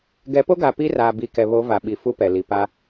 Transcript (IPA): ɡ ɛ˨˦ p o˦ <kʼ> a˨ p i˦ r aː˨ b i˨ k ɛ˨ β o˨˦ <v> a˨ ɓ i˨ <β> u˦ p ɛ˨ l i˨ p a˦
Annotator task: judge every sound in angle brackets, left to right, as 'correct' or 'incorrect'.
incorrect: ɡ, correct, incorrect: f

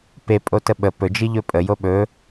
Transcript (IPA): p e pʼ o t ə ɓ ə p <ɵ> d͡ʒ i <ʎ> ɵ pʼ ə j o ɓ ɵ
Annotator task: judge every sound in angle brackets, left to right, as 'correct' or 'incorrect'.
correct, correct

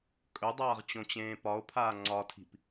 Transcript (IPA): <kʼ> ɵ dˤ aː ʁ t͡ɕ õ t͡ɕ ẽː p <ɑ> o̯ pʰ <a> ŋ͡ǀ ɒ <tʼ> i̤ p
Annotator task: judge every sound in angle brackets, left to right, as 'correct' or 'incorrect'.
correct, incorrect: ɒ, incorrect: aː, incorrect: tʰ

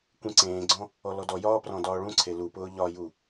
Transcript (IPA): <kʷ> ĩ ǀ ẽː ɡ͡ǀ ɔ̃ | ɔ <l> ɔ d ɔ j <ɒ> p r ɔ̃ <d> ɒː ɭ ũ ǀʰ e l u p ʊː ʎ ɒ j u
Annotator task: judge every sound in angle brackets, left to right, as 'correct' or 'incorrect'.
correct, correct, incorrect: ɒː, correct

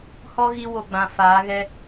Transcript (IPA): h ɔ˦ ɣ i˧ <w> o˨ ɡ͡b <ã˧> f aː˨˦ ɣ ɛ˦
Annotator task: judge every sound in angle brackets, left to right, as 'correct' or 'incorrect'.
correct, incorrect: ã˨

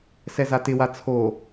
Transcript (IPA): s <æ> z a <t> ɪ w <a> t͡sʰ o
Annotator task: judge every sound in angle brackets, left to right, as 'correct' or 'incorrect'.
incorrect: ɛ, correct, correct

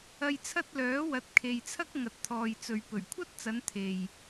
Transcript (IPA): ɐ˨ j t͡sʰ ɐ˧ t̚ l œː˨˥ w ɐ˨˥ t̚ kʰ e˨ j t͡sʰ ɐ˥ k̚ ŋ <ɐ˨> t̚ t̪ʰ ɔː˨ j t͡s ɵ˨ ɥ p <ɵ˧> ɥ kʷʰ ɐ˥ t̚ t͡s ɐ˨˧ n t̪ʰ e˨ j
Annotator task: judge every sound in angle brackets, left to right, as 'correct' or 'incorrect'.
correct, incorrect: ɵ˨˩

